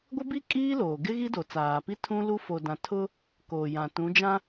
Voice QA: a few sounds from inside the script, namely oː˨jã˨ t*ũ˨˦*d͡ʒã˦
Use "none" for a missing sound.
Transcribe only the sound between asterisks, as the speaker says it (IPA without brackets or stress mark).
ũ˨˦